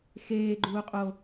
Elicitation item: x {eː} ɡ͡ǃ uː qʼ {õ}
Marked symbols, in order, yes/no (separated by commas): yes, no